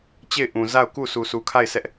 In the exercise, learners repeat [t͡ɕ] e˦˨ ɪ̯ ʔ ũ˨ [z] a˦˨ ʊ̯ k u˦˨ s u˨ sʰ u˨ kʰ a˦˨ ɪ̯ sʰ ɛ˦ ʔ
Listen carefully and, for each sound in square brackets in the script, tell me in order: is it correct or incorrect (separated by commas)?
correct, correct